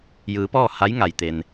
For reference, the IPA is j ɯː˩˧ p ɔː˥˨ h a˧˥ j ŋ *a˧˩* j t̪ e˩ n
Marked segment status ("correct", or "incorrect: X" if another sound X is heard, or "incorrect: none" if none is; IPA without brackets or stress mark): incorrect: a˩